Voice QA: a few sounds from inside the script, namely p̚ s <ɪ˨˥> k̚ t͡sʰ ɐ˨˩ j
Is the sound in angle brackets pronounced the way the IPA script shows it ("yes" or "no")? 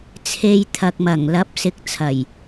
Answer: yes